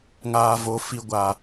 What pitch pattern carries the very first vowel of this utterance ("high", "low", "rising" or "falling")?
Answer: low